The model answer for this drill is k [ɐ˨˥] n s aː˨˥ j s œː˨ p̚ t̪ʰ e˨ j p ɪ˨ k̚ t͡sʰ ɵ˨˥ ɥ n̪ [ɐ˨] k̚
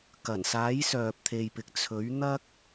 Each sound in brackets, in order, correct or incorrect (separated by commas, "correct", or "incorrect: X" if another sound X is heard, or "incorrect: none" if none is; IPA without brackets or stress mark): incorrect: ɐ˨˩, incorrect: ɐ˥